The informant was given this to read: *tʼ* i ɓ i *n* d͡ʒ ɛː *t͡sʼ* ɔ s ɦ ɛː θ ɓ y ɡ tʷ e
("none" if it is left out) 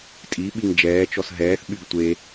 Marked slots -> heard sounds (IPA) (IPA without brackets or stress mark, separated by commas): tʼ, ŋ, t͡ʃ